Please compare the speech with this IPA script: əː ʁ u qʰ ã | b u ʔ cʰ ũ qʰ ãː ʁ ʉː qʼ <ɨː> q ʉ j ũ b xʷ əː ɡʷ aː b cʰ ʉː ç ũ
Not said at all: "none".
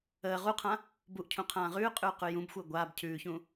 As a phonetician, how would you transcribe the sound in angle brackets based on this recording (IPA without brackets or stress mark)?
ʉː